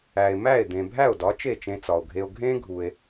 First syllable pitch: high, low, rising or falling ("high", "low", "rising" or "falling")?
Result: low